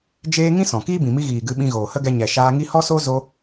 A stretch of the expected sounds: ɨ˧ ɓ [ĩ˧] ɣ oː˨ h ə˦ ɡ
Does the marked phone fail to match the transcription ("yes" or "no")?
no